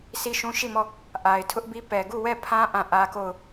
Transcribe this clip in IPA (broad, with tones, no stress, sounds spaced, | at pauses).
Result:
sʰ i˦ ʃ ũ˦ ʃ i˦˨ m ɔ˦˨ | ʔ a˨ ɪ̯ tʰ ʊ˦ ʔ b i˦ p ɛ˨ ɡ u˦˨ w ɛ˦˨ pʰ ã˦ ʔ ã˦˨ ʔ ä˦ k o˦˨ ʊ̯